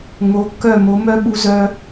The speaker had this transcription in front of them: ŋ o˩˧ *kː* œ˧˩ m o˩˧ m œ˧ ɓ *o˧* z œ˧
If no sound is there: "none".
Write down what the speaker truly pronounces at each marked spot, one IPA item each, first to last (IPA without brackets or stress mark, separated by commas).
kː, u˧